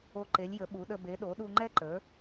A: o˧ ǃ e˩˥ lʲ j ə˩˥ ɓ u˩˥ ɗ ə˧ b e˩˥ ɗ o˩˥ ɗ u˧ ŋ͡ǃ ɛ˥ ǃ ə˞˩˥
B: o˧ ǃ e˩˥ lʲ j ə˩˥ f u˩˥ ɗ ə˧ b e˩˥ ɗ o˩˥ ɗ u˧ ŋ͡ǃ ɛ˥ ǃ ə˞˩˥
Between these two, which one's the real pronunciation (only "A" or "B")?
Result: A